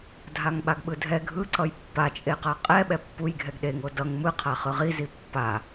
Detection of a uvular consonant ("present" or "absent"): present